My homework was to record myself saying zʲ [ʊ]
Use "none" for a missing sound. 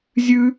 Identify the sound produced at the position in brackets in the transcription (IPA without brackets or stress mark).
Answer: ʉ